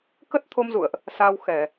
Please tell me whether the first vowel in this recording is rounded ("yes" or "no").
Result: no